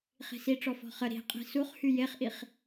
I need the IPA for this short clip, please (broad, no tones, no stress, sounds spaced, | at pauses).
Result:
χ i̤ s i ʈ͡ʂ ɔ f ɔ̤ χ ə ɾ i̤ qʼ i̤ s u χ h y j e χ ʔ i χ